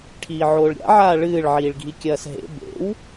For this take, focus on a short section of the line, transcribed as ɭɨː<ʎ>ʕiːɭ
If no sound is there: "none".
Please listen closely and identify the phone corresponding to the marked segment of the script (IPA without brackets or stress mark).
ɭ